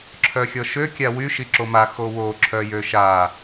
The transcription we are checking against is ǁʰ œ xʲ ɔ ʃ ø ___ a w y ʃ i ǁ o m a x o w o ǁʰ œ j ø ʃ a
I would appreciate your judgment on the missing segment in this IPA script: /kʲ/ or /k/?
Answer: kʲ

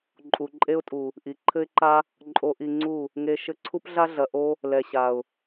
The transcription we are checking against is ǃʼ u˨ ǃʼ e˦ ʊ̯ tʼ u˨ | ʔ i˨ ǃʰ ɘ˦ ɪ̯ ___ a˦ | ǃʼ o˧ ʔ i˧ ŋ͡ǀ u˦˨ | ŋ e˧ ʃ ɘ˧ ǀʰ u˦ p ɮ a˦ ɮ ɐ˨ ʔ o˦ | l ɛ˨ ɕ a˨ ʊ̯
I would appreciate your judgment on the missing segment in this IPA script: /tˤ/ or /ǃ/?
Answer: ǃ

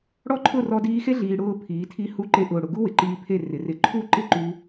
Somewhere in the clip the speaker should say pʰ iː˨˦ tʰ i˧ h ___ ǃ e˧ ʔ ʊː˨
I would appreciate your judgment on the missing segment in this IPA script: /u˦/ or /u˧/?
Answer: u˧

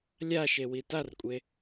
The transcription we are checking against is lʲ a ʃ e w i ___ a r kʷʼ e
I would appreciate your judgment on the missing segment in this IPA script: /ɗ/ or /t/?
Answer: t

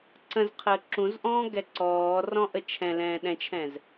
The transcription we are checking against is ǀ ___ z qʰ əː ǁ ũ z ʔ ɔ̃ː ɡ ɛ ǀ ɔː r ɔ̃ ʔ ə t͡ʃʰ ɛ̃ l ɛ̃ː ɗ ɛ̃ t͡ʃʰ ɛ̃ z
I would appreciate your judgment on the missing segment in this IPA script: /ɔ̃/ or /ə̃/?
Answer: ə̃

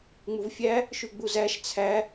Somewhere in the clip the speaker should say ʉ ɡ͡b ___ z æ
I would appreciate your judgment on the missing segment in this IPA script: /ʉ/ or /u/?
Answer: u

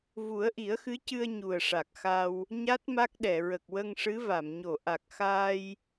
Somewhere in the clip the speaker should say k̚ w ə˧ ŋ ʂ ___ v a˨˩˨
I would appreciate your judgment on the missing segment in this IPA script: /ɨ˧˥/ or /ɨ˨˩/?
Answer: ɨ˧˥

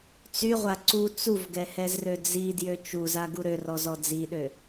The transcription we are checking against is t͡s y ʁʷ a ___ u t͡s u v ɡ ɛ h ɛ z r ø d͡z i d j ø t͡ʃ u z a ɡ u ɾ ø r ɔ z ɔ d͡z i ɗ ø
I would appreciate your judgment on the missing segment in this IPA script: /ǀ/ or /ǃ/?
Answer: ǀ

